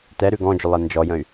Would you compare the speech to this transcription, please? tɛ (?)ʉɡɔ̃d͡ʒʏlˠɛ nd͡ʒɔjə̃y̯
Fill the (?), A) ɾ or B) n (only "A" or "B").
A